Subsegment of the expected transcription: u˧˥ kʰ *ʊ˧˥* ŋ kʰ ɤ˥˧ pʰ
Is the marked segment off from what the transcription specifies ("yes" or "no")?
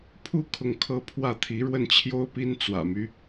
yes